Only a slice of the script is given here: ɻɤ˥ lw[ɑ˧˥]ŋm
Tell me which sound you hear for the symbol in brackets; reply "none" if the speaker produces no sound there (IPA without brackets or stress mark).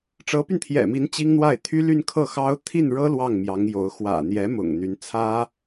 ɑ˥˩